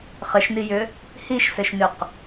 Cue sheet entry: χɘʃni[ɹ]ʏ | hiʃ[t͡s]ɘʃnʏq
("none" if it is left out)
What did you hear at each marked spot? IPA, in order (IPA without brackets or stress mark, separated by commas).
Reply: j, s